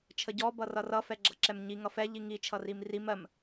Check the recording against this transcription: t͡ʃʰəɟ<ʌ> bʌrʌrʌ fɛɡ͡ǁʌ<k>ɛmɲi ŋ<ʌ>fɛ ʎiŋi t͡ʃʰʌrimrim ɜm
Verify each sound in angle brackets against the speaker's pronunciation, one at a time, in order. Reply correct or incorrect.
incorrect: ɔ, incorrect: ǁ, correct

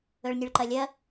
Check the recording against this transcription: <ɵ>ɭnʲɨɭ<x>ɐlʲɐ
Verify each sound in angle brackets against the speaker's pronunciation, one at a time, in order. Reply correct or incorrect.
correct, incorrect: ǃ

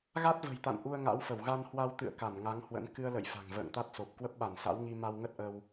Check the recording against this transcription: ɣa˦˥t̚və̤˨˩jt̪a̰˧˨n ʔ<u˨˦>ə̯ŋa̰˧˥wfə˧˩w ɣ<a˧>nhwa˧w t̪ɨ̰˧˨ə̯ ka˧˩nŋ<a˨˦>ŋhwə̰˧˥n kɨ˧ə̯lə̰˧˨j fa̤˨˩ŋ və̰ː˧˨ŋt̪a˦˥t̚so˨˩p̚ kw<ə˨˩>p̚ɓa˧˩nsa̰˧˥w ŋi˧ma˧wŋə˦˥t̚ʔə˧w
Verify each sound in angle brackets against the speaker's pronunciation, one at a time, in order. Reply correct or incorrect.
incorrect: u˧, correct, correct, incorrect: ə˦˥

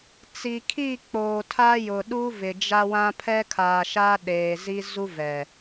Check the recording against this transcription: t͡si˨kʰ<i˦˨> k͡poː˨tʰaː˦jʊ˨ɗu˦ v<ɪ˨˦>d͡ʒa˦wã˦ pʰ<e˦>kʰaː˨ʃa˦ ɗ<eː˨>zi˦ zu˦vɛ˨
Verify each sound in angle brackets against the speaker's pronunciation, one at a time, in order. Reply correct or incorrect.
correct, incorrect: ɪ˨, incorrect: ɛ˦, correct

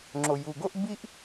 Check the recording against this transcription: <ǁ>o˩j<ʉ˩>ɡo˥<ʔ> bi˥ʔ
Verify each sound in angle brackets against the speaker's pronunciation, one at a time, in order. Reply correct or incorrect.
incorrect: ŋ͡ǁ, incorrect: u˩, correct

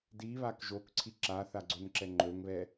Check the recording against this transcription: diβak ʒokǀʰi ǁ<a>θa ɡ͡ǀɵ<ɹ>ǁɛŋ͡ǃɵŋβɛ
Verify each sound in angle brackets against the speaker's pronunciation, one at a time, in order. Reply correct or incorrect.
correct, incorrect: n

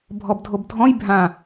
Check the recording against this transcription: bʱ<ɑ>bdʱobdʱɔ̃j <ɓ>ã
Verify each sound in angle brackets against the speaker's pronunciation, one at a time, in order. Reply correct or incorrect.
incorrect: ɔ, incorrect: bʱ

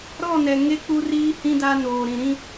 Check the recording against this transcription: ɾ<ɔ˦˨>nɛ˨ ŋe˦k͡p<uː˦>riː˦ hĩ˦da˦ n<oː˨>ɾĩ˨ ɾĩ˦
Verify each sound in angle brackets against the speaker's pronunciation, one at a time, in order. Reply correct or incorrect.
correct, incorrect: u˦, correct

